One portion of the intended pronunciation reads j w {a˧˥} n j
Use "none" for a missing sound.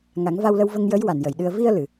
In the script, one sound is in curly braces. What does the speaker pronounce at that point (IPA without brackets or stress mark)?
a˨˩˨